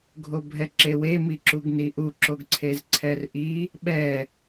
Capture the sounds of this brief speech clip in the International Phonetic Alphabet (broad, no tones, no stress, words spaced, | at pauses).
ɡʱobʱɛǁewe miǁuɡniʔu ǁoɡǀʰezǀʰɛrʔi | ɓɛ